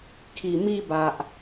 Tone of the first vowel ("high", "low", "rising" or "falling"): low